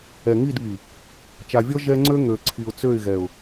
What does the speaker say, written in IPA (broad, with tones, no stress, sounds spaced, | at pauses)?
ɛ˨ ŋ i˦˨ d β i˨ | t͡ʃ a˨ vʲ ɔ˦ ʒ ɛ˦ ŋ͡ǀ ø˦ ŋ ø˨ ǀʰ i˨ ʊ̯ t͡s ø˦˨ ɪ̯ ɣ ɛ˨ ʊ̯